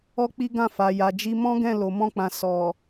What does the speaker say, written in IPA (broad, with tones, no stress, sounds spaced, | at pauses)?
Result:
ɔ˦ k͡p i˦ ɡ ã˦˨ f a˨ j a˨ d͡ʒ i˧ m ɔ̃˦ ɡ ɛ̃˦˨ l o˨ m ɔ̃˧ k͡p ã˨ s ɔ˨